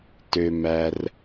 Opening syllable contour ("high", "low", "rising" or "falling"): low